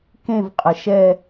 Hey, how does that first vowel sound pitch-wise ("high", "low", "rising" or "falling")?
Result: falling